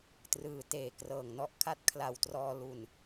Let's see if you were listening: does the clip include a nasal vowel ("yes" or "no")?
no